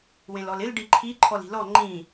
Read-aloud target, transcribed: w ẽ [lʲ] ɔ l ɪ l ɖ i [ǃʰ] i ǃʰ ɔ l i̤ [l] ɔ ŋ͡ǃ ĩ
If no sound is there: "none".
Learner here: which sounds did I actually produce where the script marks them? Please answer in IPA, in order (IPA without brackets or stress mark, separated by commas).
l, ǃʰ, l